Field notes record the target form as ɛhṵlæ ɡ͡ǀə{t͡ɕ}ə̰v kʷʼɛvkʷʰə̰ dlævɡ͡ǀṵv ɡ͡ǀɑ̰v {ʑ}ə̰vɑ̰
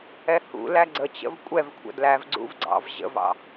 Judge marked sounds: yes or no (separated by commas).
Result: yes, yes